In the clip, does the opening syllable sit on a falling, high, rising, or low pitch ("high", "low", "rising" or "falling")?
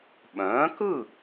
rising